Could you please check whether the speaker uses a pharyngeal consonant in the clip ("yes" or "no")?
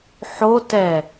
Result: yes